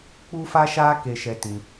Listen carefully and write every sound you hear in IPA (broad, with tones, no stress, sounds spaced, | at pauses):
k͡p u˦ f a˦ ʃ a˦ k e˧ ʃ ɛ˧ t ĩ˧